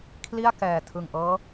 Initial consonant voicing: voiceless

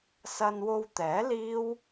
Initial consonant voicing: voiceless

